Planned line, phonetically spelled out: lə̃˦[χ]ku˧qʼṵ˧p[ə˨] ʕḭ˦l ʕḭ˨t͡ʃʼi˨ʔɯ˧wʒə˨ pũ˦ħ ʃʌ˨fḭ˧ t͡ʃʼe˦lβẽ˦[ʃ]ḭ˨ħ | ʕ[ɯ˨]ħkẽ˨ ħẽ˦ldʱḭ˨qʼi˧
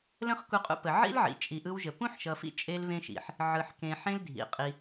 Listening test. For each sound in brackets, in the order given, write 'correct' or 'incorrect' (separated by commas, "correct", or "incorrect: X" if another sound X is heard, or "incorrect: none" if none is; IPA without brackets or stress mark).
correct, correct, correct, correct